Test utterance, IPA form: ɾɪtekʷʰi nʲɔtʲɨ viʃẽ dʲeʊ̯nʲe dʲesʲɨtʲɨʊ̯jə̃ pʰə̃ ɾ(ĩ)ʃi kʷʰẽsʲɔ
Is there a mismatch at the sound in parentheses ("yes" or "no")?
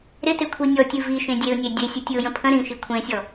no